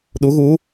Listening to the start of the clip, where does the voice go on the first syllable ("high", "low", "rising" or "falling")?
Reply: rising